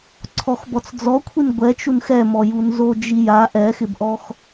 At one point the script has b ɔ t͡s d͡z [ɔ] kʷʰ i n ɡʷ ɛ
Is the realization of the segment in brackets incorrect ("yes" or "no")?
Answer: no